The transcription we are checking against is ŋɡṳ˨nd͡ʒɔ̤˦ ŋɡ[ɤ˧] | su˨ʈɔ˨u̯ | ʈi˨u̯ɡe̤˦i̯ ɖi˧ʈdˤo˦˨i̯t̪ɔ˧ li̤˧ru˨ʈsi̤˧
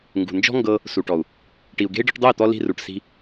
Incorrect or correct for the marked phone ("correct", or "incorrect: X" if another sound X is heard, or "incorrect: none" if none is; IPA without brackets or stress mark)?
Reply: correct